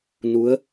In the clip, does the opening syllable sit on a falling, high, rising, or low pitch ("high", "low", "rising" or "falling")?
rising